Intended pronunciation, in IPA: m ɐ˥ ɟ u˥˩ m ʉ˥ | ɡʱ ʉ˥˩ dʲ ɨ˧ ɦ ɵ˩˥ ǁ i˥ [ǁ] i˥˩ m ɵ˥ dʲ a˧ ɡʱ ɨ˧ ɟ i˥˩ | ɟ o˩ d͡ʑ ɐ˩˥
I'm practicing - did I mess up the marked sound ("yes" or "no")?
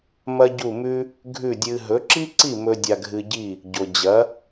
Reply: yes